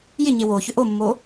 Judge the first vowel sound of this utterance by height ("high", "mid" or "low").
high